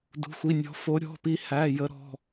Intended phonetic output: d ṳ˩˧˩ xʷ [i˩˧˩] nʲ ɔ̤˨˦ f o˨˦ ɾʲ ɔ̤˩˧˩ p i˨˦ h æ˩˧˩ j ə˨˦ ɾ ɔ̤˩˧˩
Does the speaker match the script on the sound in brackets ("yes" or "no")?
yes